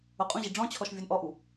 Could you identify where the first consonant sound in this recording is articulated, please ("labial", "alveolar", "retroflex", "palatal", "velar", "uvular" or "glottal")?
uvular